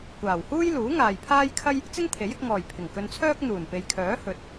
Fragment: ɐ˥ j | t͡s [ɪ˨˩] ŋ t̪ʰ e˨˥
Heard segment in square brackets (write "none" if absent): ɪ˥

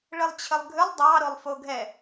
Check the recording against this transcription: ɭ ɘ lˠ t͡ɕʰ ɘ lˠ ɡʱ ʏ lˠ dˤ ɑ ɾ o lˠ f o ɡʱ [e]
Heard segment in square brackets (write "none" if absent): ɛ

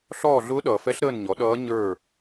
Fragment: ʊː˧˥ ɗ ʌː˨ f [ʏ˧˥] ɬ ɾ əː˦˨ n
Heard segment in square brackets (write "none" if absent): ɛ˧˥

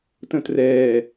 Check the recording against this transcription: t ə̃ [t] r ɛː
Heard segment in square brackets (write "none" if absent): t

